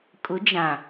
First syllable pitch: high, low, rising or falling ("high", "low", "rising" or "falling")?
rising